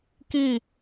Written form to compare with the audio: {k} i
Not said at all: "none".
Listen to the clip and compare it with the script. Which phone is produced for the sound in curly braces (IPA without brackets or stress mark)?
k